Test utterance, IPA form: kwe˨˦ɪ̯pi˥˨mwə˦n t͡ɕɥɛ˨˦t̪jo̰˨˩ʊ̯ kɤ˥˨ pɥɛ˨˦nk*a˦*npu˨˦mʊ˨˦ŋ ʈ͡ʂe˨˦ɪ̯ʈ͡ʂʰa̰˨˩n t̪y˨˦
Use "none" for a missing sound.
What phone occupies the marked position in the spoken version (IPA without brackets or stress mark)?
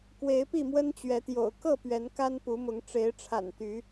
a˦